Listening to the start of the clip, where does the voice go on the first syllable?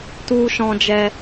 high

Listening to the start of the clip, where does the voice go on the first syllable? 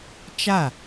falling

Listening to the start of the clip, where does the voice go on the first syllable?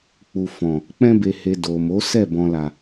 low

